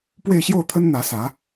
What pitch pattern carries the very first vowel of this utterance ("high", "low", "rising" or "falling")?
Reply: falling